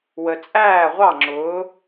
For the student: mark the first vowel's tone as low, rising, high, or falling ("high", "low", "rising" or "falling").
low